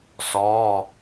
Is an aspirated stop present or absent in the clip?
absent